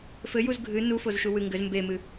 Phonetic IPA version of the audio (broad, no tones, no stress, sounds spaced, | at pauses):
f ɘ j u z ɡʱ ɨ n u f o z ʃ u w ɨ ŋ ɡ ɘ z m b e m ɨ